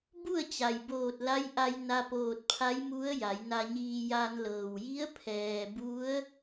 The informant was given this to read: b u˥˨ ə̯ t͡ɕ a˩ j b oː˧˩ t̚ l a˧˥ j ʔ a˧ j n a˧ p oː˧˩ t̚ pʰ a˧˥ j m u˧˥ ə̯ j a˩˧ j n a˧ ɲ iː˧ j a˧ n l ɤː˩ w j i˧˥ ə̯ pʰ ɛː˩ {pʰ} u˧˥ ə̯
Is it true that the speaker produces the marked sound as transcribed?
no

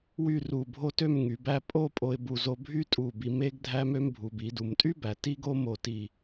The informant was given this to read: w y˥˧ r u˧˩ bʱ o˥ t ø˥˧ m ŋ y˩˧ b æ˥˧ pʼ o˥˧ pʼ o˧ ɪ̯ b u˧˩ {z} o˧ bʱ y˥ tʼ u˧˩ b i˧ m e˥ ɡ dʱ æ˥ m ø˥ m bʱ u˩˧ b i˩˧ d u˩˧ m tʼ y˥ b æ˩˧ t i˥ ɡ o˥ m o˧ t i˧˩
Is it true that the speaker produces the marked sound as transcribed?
yes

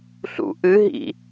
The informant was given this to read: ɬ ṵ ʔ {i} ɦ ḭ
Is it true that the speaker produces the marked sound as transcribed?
no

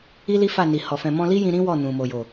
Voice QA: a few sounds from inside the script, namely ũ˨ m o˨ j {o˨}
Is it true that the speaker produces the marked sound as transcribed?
yes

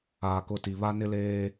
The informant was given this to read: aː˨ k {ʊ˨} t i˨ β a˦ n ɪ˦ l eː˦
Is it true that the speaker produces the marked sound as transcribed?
no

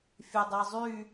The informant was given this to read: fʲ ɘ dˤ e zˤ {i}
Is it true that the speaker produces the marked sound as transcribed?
no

